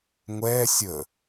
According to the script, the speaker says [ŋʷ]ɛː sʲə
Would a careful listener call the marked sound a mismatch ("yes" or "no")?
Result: no